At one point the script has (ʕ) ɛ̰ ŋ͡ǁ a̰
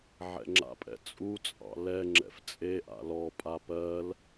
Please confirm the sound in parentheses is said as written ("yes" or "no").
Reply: yes